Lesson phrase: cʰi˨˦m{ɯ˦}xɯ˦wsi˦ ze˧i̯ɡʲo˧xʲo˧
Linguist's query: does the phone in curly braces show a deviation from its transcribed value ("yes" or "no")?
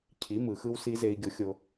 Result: yes